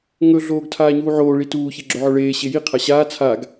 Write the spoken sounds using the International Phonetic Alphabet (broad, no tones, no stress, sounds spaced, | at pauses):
ŋ ɵ ɮ oː ɡ tʰ aː ɲ uː ʕ oː ɭ i t uː ç e ɡ͡ǁ ɵ ʕ ɵ ɭ eː ɕ e j i qʰ a ɕ aː t͡sʰ a ɡ